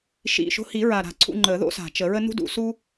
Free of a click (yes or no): no